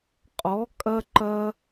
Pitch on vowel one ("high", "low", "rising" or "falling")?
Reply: rising